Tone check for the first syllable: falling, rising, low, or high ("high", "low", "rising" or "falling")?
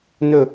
falling